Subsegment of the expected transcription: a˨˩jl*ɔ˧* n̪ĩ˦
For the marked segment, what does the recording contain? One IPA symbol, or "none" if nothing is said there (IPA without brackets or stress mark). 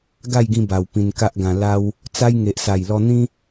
ɔ˧